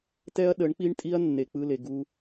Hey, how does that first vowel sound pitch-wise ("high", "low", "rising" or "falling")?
high